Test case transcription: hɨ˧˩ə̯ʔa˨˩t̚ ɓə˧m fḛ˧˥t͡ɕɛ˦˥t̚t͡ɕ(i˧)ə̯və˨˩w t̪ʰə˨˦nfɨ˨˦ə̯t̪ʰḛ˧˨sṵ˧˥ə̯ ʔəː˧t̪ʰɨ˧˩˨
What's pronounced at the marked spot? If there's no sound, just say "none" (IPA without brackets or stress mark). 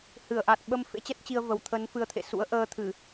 i˧